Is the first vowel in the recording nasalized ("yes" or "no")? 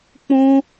yes